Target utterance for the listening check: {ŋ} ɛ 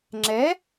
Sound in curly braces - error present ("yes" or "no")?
yes